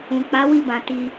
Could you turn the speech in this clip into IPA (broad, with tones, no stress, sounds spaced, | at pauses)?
ũ˨ k͡p a˨˦ w i˦˨ b ã˨ t i˧